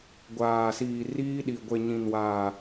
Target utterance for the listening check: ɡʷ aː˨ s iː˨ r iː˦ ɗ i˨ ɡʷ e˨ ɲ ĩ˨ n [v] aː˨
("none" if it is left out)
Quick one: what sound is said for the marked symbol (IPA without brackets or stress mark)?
w